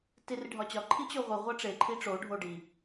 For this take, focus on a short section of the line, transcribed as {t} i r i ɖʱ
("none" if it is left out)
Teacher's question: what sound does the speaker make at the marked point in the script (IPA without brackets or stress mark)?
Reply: t